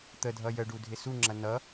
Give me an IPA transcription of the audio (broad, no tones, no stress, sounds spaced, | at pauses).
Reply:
t̪ ə dʱ ʌ j ə ɖ u dʱ ɪ s u ŋ͡ǁ ɐ n ʌ